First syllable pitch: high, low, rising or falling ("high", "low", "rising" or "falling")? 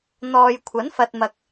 low